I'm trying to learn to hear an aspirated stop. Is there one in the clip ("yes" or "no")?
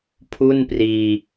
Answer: yes